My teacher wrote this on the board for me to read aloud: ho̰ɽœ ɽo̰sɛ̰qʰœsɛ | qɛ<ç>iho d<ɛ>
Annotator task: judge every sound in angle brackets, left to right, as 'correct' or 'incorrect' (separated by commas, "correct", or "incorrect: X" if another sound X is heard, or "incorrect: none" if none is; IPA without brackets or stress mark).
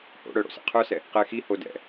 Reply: incorrect: x, incorrect: ɛ̰